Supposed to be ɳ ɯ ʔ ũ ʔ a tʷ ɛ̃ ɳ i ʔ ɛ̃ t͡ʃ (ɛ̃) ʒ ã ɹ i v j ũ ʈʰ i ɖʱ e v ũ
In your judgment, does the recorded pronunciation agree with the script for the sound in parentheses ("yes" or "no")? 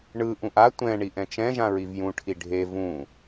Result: yes